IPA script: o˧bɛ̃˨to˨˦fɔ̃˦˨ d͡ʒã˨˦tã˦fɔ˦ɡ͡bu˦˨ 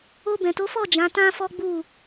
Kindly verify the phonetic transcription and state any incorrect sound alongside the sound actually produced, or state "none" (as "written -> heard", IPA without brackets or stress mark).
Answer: ɔ̃˦˨ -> ɔ˦˨